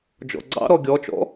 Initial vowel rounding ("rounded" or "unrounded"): rounded